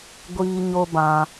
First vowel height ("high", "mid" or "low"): high